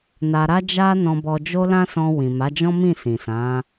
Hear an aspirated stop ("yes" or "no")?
no